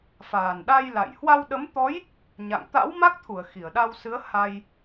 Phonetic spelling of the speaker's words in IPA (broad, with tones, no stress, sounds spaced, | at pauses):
f aː˨˩ n ɗ a˧ j l a̰˧˨ j h w a˧ w ɗ ə˨˦ m t̪ ɔ˨˦ j | ɲ a̰˧˨ ŋ t̪ a̰˧˥ w m a˦˥ k̚ t̪ʰ u˧˩ ə̯ x i˧˩ ə̯ ɗ a˧ w s ɨ˨˦ ə̯ h a˧ j